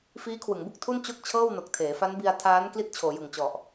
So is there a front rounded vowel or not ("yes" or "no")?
no